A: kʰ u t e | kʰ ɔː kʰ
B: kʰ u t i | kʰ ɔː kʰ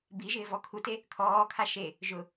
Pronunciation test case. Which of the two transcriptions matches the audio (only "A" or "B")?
A